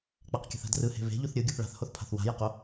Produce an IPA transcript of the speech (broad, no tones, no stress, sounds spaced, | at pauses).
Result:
k͡p a q kʲ a̤ θ a̤ d r ɯ h e̤ β e̤ ʎ u θ ɾʲ ɯ ɡʲ u θ ɭ a̤ θ h o θ pʰ a̤ θ w a̤ j a q o